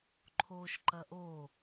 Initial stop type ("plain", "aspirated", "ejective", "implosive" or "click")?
click